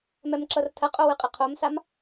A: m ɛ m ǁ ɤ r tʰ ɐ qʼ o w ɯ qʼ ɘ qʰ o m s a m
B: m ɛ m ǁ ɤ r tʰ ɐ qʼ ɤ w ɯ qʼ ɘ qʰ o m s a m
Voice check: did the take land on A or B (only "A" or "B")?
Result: A